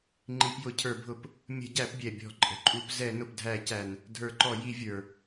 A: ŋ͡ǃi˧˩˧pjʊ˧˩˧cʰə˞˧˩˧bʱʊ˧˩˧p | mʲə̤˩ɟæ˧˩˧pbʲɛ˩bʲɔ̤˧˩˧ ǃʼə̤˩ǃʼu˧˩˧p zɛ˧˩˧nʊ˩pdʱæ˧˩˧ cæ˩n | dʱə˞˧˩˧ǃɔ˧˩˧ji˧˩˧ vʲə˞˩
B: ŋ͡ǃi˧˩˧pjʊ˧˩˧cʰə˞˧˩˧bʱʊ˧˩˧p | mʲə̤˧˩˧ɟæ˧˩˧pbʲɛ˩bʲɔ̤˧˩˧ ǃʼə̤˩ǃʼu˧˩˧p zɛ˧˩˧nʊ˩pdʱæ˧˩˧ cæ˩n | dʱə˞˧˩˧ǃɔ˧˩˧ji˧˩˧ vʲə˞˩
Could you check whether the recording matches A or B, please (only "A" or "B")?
B